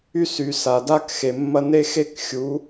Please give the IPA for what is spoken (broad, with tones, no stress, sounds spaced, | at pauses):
y˦ s y˨ s a˨ d a˦ k x e˨ mː ɐ˧ n e˦ x e˦ k xʲ u˨˦